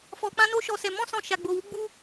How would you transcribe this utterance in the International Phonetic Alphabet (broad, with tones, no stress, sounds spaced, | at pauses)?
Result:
f ɔ˧ k͡p ã˦ n o˦ ʃ ɔ˧ s ɛ˧ m ɔ̃˦ s ɔ̃˧ ʃ a˧ ɡ͡b o˧ w u˦ ɡ͡b u˧